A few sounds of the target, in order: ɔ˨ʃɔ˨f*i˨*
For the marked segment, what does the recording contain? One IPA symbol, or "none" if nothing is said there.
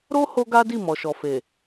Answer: e˨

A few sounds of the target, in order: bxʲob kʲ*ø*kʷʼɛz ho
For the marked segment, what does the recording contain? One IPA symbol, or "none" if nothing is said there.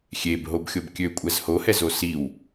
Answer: ø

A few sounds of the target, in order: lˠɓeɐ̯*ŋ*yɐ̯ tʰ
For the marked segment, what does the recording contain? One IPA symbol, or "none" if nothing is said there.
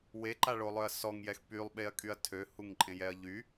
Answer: kʼ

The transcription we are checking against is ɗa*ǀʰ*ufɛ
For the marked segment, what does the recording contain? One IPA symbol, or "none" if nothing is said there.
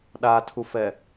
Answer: tʰ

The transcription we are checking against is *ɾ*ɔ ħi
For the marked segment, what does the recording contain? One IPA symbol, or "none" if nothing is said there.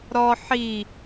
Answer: ɾ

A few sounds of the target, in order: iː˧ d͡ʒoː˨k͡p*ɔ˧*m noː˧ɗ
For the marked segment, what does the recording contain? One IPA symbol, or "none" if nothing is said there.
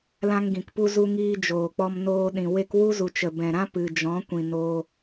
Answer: ɔ˧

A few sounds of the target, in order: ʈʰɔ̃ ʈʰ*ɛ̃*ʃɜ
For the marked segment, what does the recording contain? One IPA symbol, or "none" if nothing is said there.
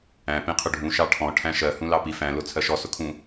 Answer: æ̃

